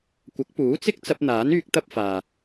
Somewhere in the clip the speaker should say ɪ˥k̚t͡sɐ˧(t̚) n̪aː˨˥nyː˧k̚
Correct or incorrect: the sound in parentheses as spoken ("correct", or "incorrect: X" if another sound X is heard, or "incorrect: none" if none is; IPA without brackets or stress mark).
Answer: incorrect: p̚